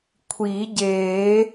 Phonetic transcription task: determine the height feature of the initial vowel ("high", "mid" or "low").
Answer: high